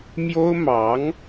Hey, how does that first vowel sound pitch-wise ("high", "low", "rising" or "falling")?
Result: high